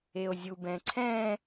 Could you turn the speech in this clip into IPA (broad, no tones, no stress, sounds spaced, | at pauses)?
e o̯ zʲ u b ɛ̃ ǀʰ ɛ̃